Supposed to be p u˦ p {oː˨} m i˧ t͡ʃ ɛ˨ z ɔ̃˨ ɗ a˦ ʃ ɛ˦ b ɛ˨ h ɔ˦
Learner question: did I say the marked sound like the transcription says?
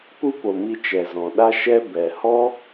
no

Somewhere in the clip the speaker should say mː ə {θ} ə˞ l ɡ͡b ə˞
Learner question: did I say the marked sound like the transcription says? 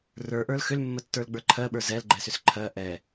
no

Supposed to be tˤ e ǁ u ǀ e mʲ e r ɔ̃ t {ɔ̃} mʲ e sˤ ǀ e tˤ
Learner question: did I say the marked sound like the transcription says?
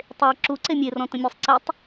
no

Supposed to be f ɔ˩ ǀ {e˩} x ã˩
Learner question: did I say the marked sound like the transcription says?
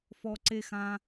yes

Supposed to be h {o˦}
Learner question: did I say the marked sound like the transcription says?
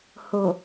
no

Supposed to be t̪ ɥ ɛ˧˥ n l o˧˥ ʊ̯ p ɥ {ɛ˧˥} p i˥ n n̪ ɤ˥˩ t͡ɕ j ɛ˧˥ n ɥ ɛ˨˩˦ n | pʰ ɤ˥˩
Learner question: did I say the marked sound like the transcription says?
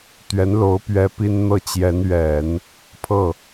no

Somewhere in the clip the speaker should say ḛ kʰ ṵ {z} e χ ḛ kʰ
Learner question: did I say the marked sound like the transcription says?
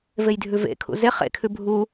yes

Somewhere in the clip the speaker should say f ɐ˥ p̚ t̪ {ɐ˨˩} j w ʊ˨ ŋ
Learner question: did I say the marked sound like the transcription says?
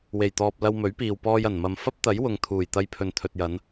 no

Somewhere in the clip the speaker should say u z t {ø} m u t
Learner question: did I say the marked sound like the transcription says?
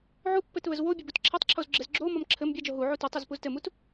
no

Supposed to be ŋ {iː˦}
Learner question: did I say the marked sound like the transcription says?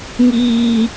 yes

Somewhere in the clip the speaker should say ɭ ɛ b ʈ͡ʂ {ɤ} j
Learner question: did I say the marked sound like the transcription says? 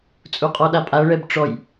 no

